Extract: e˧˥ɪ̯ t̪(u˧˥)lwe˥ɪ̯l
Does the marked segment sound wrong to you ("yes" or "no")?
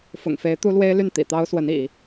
yes